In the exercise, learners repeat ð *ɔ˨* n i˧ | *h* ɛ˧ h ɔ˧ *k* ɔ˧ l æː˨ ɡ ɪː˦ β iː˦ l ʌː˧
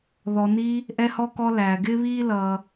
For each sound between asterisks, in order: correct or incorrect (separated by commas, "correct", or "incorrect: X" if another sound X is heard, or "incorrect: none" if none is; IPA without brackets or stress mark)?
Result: correct, incorrect: ʔ, correct